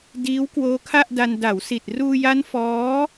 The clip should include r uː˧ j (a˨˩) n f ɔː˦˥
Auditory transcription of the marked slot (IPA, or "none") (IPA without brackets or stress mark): a˦˥